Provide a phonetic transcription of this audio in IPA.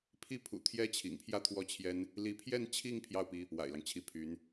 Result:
pʰ i˥ pʰ ṵ˨˩ t̪ʰ j ɛ˥ t͡ɕʰ ḭ˨˩ ŋ pʰ j ä˥ t̪ʰ w ɔ˥˩ t͡ɕʰ j ɛ˥ n | l i˧˥ pʰ j ɛ˥˧ n t͡ɕʰ i˥˧ ŋ pʰ j ɑ˥˩ ʊ̯ p i˥ | w a̰˨˩ ɪ̯ l ɑ˦ ŋ t͡ɕʰ i˧˥ pʰ y˧˥ n

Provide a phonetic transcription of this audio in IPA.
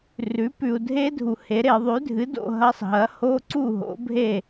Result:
r ʉ˩˥ p ʉ˨ u̯ dʱ e˦˥ dʱ u˨ h e˩˥ ɾ e˨˩˦ ðˤ ʉ˩˥ dʱ ɨ˩˥ d o̰˨ ɦ ɐ˧˥˧ sˤ ɦ ɐ˩˥ h o˧˥˧ ǀ u˥˩ ɦ o̰˩˥ bʱ e˥˩

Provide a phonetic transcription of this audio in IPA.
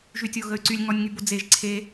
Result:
ʒ y tʲ o ɣ ə y̯ ǀ y lʲ ŋ ɔ nʲ ŋ y b o d͡z e ʒ ǀʰ e

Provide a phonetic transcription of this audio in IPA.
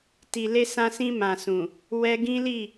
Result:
t i˨ l e˧ s ã˧ s ĩ˧ m ã˨ s ũ˨ | w ɛ˦ ɡ ĩ˦ l i˦˨

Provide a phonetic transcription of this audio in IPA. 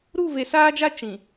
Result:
ɾ u˦˨ v e˨ s aː˦ d͡ʒ a˦ t͡ʃ ĩ˨

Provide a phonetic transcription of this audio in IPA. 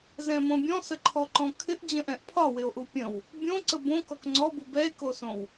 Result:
z ɛ̃ m õ bʲ ɔ̃ s ə ǃʰ ɔ ǃ ɔ̃ kʰ ɪ ʔ d͡ʑ ə̃ ʔ ɛ̃ ʔ pʰ ɒ w ɪ o̯ ʔ u pʲ ə̃ w | bʲ õ ǀ ə b õ k ɔ k ŋ͡ǀ ɔ b u b ɛ e̯ k o s õ w

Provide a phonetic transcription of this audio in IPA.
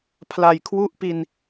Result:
pʰ l a˨˩ j kʰ w u˥˩ ʔ p i˧ n

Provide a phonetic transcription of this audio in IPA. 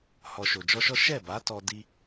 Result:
h ɔ˨ ʃ o˨ d͡ʒ ɔ˧ ʃ ɔ˦ ʃ ɛ˦˨ b a˨˦ t ɔ˧ d i˧

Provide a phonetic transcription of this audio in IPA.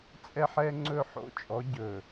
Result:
t͡sʼ ɛ˦ ħ ɛ˦ ŋ͡ǀ ɵ˦˨ ħ o̰˦ t͡ʃʼ ɔ˨˦ ɟ ɵ˨

